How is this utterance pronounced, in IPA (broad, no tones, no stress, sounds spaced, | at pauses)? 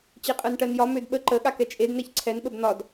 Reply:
t͡ɕ e qʼ ɜ n ʈ ɜ n j ɒ m ø d ɓ ə ǃ ə ɠ a k ɛ t͡ʃʼ e d n ɛ ç ǀʰ ɛ n ɓ ə b n̪ ɒ d